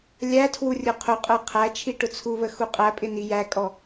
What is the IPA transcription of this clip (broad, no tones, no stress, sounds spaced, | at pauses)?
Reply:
lʲ æ tʰ w u rʲ ʊ qʰ ʊ qʼ ə˞ qʰ æ t͡ʃʰ i ʈ ʊ t͡sʰ u β ə x u qʼ æ pʼ ɪ n i j æ kʼ ɔ